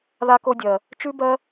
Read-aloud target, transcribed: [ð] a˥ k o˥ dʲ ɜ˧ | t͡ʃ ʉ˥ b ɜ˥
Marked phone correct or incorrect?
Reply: correct